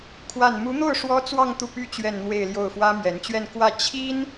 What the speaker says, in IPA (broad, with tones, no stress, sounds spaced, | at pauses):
kʰ w a˥˩ n m u˧˥ n̪ o˥˩ ʊ̯ ʂ w ɔ˥ t͡s w ɑ˥˧ ŋ t̪ u˥˩ p y˥ t͡ɕ ɥ ɛ˥˧ n n̪ w e˥˧ ɪ̯ l j o˥˩ ʊ̯ f w ä˥ m ɥ ɛ˧˥ n t͡ɕ ɥ ɛ˥˧ n k w ä˥˩ t͡ɕʰ i˥ n